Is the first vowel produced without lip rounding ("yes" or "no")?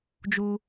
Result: no